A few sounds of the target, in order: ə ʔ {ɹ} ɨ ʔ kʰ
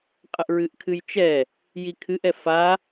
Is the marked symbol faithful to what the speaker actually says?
yes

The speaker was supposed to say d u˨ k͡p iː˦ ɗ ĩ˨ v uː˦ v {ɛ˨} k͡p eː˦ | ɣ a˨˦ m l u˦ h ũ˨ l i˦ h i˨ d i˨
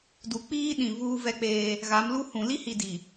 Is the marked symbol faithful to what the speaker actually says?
no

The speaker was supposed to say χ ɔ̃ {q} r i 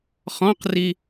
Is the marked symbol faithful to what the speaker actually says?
yes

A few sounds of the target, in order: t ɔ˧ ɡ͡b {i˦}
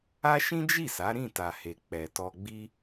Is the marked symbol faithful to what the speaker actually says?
yes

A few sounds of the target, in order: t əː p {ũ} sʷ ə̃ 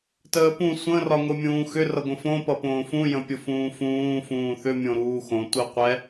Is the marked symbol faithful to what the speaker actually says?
yes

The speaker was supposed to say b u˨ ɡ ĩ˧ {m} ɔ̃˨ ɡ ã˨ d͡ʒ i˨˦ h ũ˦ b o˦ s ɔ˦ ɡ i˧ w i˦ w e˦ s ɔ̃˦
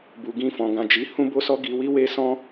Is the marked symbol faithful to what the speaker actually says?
no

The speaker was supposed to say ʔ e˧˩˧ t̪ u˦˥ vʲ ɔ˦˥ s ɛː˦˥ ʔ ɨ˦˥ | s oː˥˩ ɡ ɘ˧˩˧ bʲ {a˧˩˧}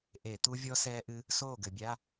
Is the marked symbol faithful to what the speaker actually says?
no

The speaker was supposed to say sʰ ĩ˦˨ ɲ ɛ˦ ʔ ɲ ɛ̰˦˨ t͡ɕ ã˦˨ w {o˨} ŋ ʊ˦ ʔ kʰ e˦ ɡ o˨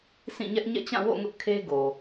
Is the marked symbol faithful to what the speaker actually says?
no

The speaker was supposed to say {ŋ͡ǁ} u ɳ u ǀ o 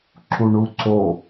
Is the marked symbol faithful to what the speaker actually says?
no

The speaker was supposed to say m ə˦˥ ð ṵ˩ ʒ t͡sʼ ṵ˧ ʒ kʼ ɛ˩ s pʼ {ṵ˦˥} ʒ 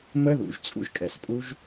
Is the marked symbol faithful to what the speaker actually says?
no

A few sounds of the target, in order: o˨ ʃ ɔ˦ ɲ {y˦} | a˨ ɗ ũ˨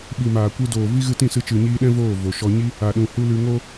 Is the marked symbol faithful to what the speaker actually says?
no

